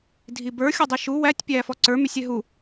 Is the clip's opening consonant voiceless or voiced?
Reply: voiced